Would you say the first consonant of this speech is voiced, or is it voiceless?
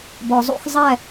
voiced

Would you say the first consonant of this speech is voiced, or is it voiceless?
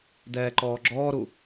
voiced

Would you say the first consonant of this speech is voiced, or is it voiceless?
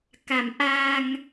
voiceless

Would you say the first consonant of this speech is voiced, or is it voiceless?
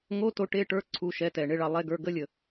voiced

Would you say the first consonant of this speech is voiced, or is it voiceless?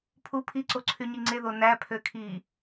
voiceless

